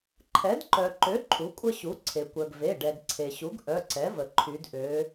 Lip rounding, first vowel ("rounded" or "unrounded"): unrounded